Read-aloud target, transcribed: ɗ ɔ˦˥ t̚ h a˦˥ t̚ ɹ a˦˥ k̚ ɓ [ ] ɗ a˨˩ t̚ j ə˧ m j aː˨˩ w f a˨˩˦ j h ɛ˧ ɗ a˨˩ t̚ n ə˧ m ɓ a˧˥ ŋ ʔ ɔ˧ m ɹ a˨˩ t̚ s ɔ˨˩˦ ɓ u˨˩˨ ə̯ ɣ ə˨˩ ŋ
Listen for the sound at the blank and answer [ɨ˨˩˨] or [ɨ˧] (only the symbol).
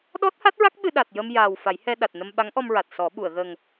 ɨ˧